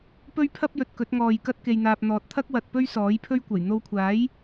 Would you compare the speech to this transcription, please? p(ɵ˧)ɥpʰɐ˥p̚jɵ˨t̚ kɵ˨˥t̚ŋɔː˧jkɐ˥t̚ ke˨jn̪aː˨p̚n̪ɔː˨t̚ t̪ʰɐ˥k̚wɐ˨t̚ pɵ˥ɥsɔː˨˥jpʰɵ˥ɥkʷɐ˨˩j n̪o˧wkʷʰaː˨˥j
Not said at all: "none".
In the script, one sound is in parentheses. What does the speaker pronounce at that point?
ɵ˥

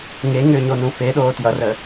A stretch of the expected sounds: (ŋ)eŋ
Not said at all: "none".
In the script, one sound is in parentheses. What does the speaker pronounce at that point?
ŋ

